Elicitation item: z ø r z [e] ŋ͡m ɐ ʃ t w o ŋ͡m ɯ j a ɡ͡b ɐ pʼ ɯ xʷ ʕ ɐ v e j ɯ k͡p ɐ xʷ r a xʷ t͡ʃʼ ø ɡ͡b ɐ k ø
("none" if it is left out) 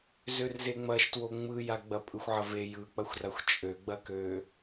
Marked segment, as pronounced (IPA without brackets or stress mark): e